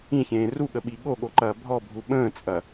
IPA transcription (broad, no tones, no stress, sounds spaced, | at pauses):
ĩ ç ẽː r u ɠ ə ɓ i ɠ o ɠ o ǃ ɐː bʱ ɔ bʱ u ɓ ə̃ː t͡sʼ ɐ